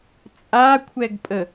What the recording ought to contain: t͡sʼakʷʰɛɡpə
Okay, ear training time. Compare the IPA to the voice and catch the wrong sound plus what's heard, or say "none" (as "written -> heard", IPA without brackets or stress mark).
p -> pʼ